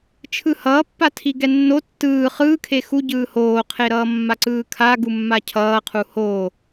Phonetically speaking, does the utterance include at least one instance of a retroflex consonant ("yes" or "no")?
no